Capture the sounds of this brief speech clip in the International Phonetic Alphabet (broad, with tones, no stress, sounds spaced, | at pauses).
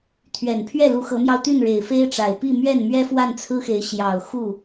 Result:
t̪ʰ ɥ ɛ˨˩ n pʰ ɥ ɛ˥˩ l u˧˥ x ɤ˧˥ m j ɑ˧ ʊ̯ t̪ y˥˩ n ɻ e˨˩ ɪ̯ f e˥ ɪ̯ ʈ͡ʂ a˨˩ ɪ̯ p i˥˧ m ɥ ɛ˥˩ n m ɥ ɛ˥ f w a˥˩ n t͡sʰ ɹ̩˥ x e˧˥ ɪ̯ ɕ j ɑ˨˩ ʊ̯ x u˥˩